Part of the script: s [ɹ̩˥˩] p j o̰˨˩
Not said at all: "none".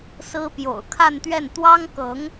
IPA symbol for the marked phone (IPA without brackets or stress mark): ɹ̩˥